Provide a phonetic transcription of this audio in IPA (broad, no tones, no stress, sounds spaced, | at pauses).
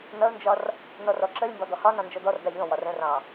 n ʌ ʊ̯ n d͡ʒ ɒ r | n ɔ r ɔ ǁ ə lʲ m b ɒ d̪ ɔ h ɒ n ɑ̃ n d͡ʒ ɔ d̪ ɔ r d ɑ ʎ ɔ̃ w ɒ r ə̃ r ɑ̃